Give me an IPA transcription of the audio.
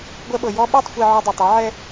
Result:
ɡʷɛ˧ɓɤ˨ jɔ˧ɓa˦˨tˤ xʷe˧ʕɔ˧ dˤe˨tˤi˨˦ʕɛ˦

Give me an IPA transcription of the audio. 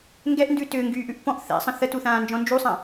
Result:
ŋɡɛʔndʉ tʏːŋɡyːʔʉʔ pɔ̃ʔ θɛ̰sˤə̃ θətuθãːnd͡ʒɔ̃ nd͡ʒusˤã

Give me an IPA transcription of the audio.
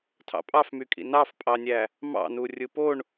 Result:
tʰɑ̰pʼɑfmykʼḭ nɑfpʼɑnʲæ | mɑ̰nu rʲɯpoɳ

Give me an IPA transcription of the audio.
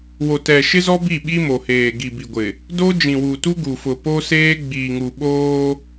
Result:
wo˨tɛ˨ʃɪ˦zɔ˦ bi˦˨ɓi˦mo˨heː˨ ɡi˨bi˨ɡʷɪ˨ | do˦ d͡ʒĩ˨wuː˨tu˦ ɡu˨fʊ˨ po˦seː˦ ɡ͡biː˨ŋu˨ɓoː˦

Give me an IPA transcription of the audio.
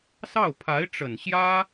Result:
sɑ˥˩ʊ̯pʰa˧˥ɪ̯ʈ͡ʂə˨˩n ɕjä˥

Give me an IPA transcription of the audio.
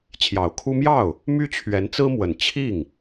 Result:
t͡ɕʰjɑ˨˩ʊ̯kʰu˥ mjɑ˥˩ʊ̯ | my˥t͡ɕʰɥɛ˧˥nt͡sɹ̩˥mwə˨˩n t͡ɕʰi˥˩ŋ

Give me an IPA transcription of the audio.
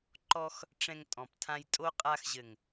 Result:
ǃɔ˧x | ʈ͡ʂɛ̃˧ŋ tʼɔ̃˨p tʰã˧jtʼo˦ qʼa˧xʑɘ˨ŋ

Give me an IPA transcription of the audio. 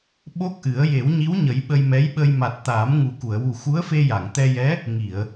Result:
ɓo˦˥k̚ʔɨ˨˩˦ə̯ je˨˩˦wɲi˧˥wɲə˨˩˦j ɓə˧jmɛ˧˥jɓə˧j ma˨˩t̚ t̪aː˨˩˦mŋu˨˩ku˨˩˨ə̯ wu˨˩xu˧˥ə̯fe˧ ja˨˩˨ŋt̪ɛ˧jɛ˧˥ | ŋi˨˩˨ə̯

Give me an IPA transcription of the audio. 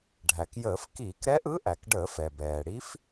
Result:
ɖʱæ˩kjəː˧˩˧f kiː˧˩˧kɾɛ˧˥ʔɯ˧˥ ʔæ˩k ɖəː˧˩˧fɛ˩bɛː˩ ɽi˧˥f

